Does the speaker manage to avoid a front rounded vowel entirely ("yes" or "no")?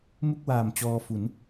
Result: yes